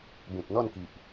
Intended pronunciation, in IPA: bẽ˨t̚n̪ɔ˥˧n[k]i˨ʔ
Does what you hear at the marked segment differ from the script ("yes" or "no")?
no